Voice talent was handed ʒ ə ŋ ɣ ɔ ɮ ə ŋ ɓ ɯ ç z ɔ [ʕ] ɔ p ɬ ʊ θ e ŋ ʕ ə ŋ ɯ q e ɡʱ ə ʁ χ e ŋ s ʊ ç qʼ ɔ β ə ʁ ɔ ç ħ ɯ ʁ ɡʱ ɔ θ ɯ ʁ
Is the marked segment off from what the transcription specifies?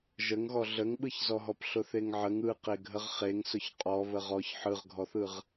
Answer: yes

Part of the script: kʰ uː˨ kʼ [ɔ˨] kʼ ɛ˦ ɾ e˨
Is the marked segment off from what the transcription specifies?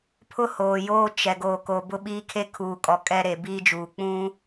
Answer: no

